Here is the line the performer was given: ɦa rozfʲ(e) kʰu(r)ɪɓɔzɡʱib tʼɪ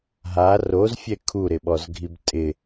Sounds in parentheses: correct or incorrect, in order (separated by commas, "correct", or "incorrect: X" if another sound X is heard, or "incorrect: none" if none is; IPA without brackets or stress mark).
incorrect: ɛ, incorrect: ɾ